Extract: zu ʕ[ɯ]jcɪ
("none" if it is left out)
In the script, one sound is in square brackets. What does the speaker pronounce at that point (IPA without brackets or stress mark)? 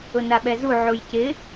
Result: u